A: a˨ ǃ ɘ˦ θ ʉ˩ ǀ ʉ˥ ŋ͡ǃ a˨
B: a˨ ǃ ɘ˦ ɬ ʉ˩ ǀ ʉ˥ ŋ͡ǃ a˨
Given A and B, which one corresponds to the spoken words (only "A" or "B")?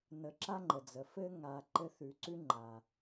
A